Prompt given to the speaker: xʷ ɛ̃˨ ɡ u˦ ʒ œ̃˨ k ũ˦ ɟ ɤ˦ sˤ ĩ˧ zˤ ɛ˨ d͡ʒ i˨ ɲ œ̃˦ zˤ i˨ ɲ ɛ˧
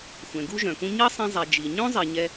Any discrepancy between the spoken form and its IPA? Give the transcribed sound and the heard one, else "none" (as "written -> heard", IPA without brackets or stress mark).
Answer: ɟ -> ɲ